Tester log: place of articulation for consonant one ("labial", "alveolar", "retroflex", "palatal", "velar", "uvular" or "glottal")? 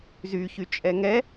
alveolar